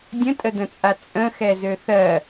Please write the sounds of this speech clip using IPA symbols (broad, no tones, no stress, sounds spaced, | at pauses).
dʲ ə̃ tʼ ə d ə̃ t͡sʼ a t͡sʼ ə̃ x ɛ z ø θ ɜ